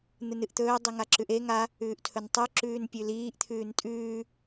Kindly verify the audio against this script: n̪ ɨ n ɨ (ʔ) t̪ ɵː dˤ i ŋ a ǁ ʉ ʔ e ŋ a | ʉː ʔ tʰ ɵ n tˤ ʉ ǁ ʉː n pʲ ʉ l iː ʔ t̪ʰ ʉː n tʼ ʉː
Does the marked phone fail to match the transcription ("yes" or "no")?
no